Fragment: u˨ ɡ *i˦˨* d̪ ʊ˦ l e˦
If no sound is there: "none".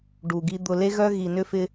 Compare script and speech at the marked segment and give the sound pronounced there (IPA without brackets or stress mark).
i˦